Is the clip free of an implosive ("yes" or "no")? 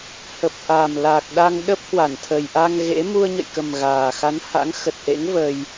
no